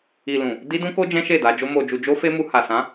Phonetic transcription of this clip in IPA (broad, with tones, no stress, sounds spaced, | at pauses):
i˨ l ũ˨ | d i˦ d ũ˦ k o˦ d͡ʒ ɛ̃˦ ʃ e˦˨ d a˧ d͡ʒ o˦ m o˧ d͡ʒ u˧ d͡ʒ o˦ f e˦ m u˧ h a˨ s ã˨˦